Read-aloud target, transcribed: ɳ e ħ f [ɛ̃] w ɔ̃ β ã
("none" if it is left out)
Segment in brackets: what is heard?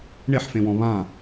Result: ẽ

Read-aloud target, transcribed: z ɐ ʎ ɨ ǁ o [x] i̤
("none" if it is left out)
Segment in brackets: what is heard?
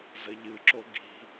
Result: ɡ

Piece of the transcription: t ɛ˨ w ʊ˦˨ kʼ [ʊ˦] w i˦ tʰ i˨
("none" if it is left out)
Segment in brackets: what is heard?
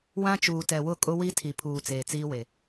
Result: ʊ˦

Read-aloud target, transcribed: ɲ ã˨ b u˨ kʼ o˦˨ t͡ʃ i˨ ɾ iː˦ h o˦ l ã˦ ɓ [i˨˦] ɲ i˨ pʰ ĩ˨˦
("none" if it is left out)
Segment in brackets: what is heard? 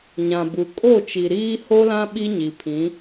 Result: i˦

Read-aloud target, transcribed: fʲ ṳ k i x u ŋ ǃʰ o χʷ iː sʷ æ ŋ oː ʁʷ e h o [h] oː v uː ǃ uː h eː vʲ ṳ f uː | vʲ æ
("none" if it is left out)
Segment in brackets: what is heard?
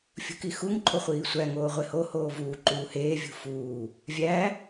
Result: h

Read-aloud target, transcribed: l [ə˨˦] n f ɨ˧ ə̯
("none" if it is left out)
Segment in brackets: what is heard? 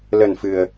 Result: ə˨˩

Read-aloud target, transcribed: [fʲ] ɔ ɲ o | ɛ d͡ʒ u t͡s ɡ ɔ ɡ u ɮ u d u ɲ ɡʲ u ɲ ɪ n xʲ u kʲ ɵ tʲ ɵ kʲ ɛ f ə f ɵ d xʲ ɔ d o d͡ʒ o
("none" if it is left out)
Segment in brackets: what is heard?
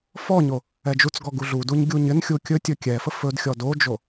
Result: f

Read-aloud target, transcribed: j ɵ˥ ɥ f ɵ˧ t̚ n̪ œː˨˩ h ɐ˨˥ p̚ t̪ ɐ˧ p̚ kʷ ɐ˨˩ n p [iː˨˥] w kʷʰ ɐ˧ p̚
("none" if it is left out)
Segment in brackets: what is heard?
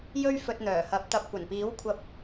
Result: iː˨˥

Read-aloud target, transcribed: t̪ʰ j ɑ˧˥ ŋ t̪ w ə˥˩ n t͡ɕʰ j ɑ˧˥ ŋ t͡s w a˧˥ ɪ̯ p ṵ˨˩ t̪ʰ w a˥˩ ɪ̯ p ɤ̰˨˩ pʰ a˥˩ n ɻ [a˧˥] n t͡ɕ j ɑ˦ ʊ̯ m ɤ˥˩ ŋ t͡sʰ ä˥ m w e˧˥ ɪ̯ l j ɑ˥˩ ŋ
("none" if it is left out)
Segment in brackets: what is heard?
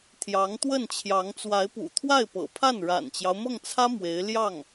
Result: a̰˨˩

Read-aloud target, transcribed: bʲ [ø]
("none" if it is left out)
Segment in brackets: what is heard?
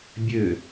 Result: ø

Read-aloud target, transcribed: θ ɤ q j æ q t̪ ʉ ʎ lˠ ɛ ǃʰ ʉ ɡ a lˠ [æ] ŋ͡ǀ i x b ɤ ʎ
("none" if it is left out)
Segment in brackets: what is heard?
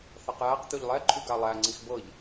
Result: æ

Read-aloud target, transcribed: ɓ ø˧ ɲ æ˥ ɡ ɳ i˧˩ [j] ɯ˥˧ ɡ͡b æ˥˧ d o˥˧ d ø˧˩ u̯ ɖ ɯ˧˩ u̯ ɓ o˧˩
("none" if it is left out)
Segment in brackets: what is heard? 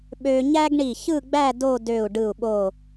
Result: ç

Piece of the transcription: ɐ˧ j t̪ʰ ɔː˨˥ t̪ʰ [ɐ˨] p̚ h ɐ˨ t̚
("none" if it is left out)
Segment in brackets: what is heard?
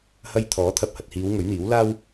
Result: ɐ˨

